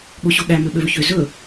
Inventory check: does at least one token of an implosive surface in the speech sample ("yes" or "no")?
yes